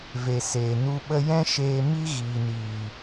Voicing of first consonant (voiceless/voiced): voiced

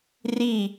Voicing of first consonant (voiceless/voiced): voiced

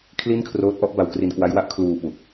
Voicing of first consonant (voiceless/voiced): voiceless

